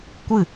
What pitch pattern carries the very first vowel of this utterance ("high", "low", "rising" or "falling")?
falling